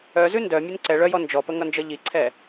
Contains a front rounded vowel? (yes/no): yes